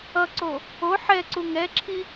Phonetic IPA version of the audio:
ʌ ǀ o | o ħ ɛ ǀ u ŋ ɛ ǁʰ i

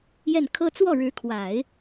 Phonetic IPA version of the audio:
j ɛ˥˩ n kʰ ɤ˥ t͡s w ɔ˥˩ ɻ ɻ̩˧˥ kʰ w a˨˩˦ ɪ̯

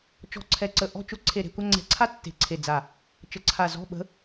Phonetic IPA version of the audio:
t͡ʃ ɔ̤˦˨ ǀʰ ɛ˦˨ ǀ ə˦˨ ʔ ɔ̤˦˨ t͡ʃ ʊ˦˨ ǀʰ e˦˨ ɾ e̤˧˥˧ kʷ a˥ ŋ͡ǀ ɛ̤˦˨ ǀʰ a˥ tː e̤˦˨ ǀʰ e˦˨ d͡z a˦˨ | t͡ʃ ə˧˥ ǀʰ a˦˨ z ɔ̤˧˥˧ ɓ ə̤˧˥

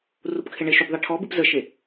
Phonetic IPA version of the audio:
r u p kʰ e ɳ e ʃ u b ðˤ ɛ ʈʰ ɔ b ɨ p z ə ʃ e

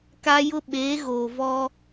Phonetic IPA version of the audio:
k a˦ j ʊ˦ ɓ eː˨˦ ɣ oː˨ v ɔ˦

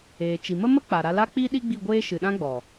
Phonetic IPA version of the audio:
eː˨ t͡ʃ i˨ m ə˦ m ə˦ k͡p a˨ ɾ a˧ l a˦ k͡p i˦ ɗ i˦ ɡ͡b i˦˨ ɡʷ eː˦ ʃ ɨ˨ ɗ ã˦ ɡ͡b ɔ˨

